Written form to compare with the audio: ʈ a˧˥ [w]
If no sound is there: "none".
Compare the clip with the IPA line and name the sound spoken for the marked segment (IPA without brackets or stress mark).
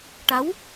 w